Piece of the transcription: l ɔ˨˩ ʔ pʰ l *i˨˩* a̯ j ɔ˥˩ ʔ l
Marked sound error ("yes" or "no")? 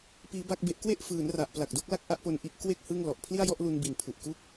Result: yes